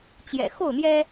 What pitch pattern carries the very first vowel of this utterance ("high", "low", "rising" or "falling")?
low